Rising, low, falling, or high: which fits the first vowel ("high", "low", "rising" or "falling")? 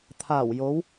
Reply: low